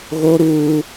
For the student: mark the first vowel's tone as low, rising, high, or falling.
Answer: high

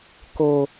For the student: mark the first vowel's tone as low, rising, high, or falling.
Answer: low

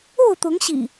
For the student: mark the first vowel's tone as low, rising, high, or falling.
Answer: falling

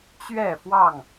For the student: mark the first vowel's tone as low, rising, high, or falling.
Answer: falling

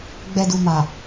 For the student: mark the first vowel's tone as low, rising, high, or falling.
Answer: low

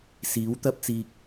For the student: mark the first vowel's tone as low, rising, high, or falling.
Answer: rising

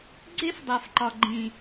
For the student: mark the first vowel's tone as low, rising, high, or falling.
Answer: high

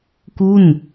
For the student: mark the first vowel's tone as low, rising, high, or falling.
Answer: falling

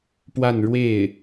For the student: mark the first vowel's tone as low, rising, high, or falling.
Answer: falling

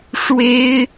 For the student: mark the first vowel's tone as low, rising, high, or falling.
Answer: high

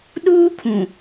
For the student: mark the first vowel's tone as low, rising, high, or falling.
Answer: high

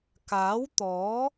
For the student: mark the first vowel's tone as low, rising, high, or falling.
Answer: rising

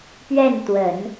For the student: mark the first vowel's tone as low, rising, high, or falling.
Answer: falling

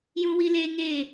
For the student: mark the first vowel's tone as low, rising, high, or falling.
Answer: high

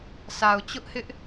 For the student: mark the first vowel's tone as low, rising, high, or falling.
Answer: low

